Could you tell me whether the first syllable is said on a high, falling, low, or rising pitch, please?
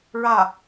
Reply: falling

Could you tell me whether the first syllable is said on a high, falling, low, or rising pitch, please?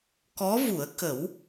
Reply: rising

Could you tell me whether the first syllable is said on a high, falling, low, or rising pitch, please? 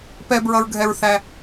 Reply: high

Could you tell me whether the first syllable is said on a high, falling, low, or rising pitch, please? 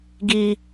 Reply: high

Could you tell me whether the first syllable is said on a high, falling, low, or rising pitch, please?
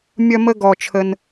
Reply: high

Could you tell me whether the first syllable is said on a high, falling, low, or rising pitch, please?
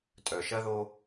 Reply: low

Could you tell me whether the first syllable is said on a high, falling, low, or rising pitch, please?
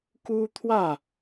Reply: high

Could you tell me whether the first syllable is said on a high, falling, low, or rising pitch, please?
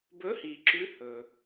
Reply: rising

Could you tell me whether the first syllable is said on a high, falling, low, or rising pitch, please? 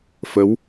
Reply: rising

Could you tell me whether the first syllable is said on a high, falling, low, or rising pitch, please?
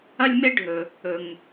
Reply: high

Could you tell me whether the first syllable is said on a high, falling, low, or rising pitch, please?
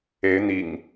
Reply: rising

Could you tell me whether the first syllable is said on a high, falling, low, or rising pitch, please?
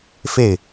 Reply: falling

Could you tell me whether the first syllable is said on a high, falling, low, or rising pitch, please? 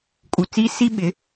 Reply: low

